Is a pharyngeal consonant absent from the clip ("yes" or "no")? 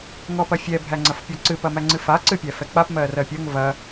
yes